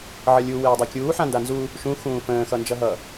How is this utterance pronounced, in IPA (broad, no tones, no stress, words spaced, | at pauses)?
ʕʌlʲu weːdˤakʲuː ħãndanzu | ʃũ xũːfə̃ː xʌnd͡ʒʌɦʌ